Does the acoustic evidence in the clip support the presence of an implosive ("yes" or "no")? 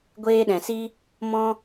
yes